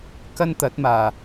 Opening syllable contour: high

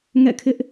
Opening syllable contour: falling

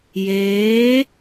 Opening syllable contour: rising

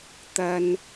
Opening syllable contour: high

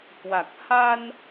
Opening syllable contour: low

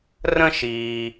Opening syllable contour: high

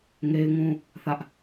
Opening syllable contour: high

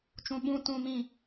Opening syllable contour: high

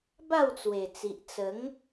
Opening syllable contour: falling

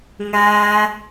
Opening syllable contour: high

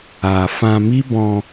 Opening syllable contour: low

